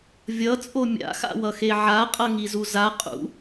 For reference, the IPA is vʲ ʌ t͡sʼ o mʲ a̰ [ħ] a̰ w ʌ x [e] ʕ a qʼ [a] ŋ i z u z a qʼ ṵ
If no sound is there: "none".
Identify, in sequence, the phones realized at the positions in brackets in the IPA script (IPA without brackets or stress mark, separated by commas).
x, e, ʌ